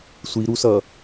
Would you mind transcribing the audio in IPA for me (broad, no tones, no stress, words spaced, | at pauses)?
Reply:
sʷiɾusʌ